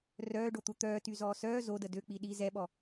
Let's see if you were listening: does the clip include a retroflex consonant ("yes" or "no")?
yes